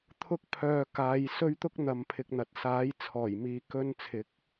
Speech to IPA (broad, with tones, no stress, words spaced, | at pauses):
t̪ʰʊ˧k̚pʰœː˨ kaː˨˧j sɵ˧ɥt̪ʊ˧k̚ n̪ɐ˨mpʰɪ˨k̚n̪ɐ˨t̚ saː˨˥j t͡sʰɔː˨˩j miː˨˧kɵ˧nt͡sʰɪ˨˥k̚